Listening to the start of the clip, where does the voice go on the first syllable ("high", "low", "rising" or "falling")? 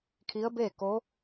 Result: rising